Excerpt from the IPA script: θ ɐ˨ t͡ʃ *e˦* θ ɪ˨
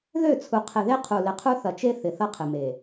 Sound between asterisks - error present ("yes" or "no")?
no